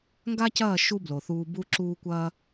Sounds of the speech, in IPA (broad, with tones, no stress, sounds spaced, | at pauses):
ŋ ɡ a˦ c ɐː˦˨ ʃ u˦ b l o˨ θ uː˧ b u˦ ǁ uː˦ kʷ ɐː˦